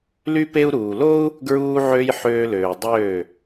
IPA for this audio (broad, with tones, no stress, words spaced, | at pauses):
ly˧pe˧u̯ ɾuː˨lo˦u̯ | ɡɹuː˧ʕø˧j ħøː˧løː˨ dˤøː˦˨